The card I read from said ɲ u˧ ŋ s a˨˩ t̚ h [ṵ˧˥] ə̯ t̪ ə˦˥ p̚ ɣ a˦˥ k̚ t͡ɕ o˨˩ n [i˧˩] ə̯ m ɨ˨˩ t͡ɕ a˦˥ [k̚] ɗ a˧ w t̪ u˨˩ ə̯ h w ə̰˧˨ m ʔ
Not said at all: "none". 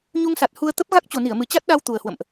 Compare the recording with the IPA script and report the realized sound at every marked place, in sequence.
u˧, i˧˩, t̚

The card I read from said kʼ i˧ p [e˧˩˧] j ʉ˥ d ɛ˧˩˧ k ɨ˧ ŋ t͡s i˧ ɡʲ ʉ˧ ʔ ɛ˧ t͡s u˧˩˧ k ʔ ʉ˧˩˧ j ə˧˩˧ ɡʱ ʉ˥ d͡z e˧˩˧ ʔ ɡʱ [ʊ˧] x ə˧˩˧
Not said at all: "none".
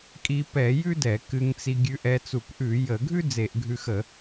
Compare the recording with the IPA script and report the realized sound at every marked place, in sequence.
ɛ˧˩˧, ʉ˧

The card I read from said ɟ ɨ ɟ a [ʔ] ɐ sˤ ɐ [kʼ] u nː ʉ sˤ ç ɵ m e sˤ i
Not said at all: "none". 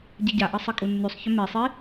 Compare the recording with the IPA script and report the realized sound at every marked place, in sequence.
ʔ, kʼ

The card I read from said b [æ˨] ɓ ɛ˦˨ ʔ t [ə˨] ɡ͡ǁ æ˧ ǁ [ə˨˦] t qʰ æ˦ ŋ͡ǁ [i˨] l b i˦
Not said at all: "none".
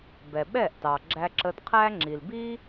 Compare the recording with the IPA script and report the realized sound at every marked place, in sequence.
ɛ˨, ɑ˨, ə˧, i˨

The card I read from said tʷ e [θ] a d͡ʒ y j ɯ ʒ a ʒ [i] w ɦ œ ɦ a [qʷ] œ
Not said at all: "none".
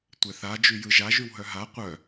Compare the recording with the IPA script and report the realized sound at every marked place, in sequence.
θ, y, qʷ

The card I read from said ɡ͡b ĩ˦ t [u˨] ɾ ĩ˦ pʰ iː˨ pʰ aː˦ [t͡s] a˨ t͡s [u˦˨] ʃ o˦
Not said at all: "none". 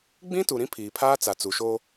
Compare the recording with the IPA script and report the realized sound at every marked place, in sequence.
u˨, t͡s, u˨

